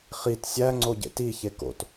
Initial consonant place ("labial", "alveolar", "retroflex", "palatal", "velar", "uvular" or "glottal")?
uvular